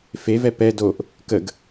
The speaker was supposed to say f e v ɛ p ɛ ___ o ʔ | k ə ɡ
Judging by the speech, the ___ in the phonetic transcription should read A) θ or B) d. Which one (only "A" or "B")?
B